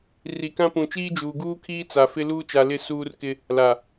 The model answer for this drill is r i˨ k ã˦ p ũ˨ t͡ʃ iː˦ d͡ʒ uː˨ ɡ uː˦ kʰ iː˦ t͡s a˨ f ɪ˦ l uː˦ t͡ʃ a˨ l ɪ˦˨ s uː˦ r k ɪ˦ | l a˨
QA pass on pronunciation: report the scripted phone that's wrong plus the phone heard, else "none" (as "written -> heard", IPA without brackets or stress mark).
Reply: none